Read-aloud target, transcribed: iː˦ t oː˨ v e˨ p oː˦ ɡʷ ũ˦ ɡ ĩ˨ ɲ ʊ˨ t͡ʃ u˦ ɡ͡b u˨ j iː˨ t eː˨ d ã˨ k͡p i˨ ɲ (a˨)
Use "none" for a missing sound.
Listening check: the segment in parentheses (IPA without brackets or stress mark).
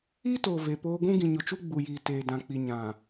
ã˨